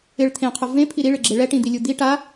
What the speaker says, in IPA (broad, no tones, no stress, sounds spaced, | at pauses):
ɪ ɭ t̪ʰ ẽ qʰ ʊ v ẽ pʰ i ɾ i ɭ ɪ ɡ͡ǁ e ɭ ɛ ʈ ĩ d̪ i lʲ u d̪ i ʈ a